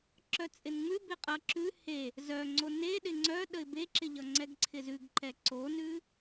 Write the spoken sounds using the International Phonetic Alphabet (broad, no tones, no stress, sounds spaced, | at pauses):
ǁ œ t͡sʼ ɪ n ŋ͡m ʉ b ɪ qʼ ʌ ǁ ʉ h e | z œ ŋ͡ǀ o n e ɗ ɪ ŋ͡ǀ œ ɗ ə ɪ̯ b e ǁ ɪ ʎ ʌ ŋ͡ǀ ɛ ɡ ǀʰ ɪ z ʉ ɡ ǃ ɛ ǀ o n ʉ